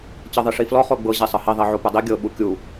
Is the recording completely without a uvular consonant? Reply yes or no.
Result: no